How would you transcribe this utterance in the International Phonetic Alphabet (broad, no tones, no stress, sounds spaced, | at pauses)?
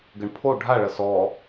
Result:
ɡ ɘ ɳ pʰ o ɖʱ a ɭ ɐ s ɔ